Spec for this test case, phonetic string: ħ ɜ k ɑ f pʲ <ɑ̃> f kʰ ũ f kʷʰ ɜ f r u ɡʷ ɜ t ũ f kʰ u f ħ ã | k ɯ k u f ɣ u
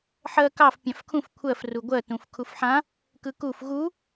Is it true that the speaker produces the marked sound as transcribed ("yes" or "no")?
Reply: yes